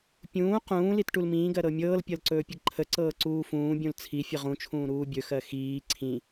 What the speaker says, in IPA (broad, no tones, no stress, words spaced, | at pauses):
pʲũː qũː litʈulmĩːɡɜ ɾɤmʲɤːlpʲɤl ǀɵːpʲəɡǃʰəǀɤː ǀuːfũːbʲũl t͡sʰifʲə ʁũt͡ʃʰũː ɾuːbʲɵxɜ xiː ǀʰĩ